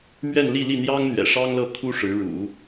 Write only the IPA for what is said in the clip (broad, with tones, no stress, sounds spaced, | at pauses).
m ɥ ɛ˥˧ n l i˥˧ l i˥˩ n̪ j ɑ˥ ŋ n̪ ɥ ɛ̰˨˩ ʂ ɑ˥ ŋ l ɤ˥˩ kʰ u˥ ʂ ɻ̩˧˥ ɻ ṵ˨˩˦